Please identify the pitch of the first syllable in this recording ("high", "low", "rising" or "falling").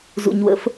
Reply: low